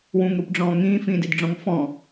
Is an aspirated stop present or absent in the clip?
absent